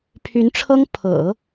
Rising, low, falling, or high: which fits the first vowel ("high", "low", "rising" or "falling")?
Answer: rising